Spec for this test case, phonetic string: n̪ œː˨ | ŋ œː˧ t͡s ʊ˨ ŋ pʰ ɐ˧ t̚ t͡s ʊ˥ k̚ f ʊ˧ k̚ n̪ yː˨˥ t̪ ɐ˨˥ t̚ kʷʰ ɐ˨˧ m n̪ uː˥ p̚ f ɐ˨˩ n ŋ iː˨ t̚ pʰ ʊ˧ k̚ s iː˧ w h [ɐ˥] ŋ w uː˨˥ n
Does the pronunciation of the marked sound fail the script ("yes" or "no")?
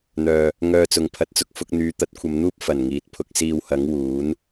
yes